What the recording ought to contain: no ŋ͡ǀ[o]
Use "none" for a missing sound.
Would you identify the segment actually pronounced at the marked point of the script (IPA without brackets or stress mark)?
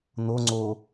o